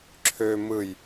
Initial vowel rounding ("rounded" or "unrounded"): rounded